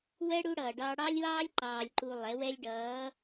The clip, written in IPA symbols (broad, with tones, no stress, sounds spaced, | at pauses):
w ɛ˦ ɽ u˦ ɽ ʌː˨ ɖ ɑ˦ ɽ ɑ˦ lʲ w ɑː˦ lʲ ǃ ɑː˨ lʲ ǃ u˨ lˠ ɛ˨˦ w ɛ˦ lʲ ɖ ʌː˨˦